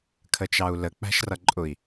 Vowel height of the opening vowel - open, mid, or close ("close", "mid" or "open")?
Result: mid